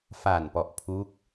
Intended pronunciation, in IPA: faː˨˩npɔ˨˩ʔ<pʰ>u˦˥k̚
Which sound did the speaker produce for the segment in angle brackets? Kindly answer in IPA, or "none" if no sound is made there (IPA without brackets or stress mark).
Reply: pʰ